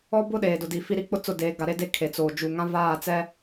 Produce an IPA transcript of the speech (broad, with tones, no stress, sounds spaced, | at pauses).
ɔ˦ b ʊ˦ ɗ eː˨ d ʊ˨ d i˨ f i˦ ɾ i˦ k͡p ʊ˦ t͡s ʊ˦˨ d eː˨˦ ɡ a˨ ɾ e˦ d e˦ kʰ e˨ t͡s oː˨ d͡ʒ u˨ ŋ ã˦ v aː˦˨ t͡s ɛ˦